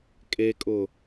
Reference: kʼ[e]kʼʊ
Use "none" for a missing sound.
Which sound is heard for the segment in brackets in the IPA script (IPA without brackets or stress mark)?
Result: e